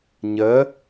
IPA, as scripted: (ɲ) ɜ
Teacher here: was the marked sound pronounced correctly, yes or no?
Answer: yes